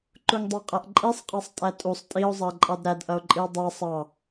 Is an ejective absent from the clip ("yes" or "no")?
no